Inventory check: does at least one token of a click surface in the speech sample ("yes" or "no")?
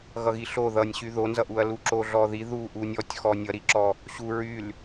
yes